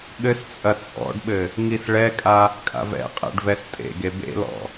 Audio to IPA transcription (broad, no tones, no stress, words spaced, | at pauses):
ɠɘst͡sʼɐ t͡sʼɔ̰ɖɓɘ | ŋisɭɛkʼa | kʼa̰vɛ̰qʼɛ̰ɖ vɛstʼḛɡe bḛlɔ̰